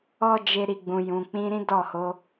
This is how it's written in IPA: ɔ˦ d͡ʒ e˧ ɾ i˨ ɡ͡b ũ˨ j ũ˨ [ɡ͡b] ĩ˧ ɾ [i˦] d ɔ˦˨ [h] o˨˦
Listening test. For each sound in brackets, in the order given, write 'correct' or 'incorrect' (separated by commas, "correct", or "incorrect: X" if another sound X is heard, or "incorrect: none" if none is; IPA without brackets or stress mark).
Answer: incorrect: k͡p, incorrect: ĩ˦, correct